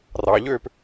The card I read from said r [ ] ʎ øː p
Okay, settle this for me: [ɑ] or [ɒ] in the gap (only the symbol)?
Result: ɑ